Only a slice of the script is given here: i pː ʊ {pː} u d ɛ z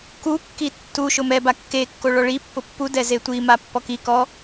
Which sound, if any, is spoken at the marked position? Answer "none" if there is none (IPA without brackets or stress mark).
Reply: pː